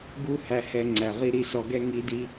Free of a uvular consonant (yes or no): no